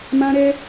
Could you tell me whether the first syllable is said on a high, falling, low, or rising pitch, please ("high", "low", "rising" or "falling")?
high